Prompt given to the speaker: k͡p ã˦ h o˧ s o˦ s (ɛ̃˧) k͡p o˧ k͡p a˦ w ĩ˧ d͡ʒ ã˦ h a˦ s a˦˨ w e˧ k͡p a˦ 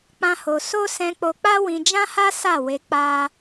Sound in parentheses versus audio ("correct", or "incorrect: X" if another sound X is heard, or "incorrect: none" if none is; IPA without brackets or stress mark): correct